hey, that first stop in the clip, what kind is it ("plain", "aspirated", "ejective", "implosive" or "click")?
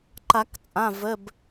click